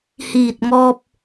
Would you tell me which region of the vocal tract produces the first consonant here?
throat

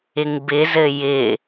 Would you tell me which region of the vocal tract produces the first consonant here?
velum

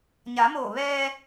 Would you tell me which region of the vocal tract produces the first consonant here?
palate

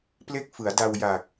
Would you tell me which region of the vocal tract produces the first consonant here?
lips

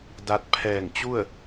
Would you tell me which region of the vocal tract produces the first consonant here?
tongue tip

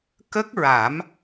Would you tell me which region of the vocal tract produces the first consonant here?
velum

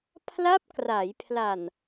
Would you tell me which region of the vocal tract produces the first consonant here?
lips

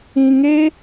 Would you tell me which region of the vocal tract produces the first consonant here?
velum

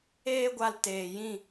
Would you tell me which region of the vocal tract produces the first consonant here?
velum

